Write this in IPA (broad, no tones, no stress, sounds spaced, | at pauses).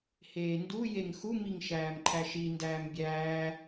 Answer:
h eː n d u j e ŋ x u m i ŋ ʃ æː m ǃʰ æ ʃ i n d æː m bʲ æː